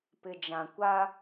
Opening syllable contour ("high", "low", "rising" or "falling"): low